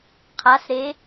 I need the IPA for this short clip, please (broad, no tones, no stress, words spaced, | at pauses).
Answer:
qʰasɾe